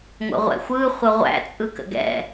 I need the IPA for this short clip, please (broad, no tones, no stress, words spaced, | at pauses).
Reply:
ŋʷə̰ʁʷɛ̰xʷɯ χʷəʁʷæ̰ t͡sʼɯkə̰ɡɛ̰